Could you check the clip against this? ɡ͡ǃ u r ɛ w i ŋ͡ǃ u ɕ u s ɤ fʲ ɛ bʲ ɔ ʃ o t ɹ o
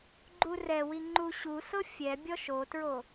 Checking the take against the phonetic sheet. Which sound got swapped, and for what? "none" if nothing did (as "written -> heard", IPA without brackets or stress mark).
none